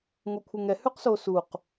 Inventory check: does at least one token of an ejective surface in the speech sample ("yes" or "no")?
no